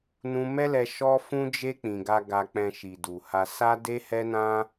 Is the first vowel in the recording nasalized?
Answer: yes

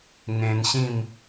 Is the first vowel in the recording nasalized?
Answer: yes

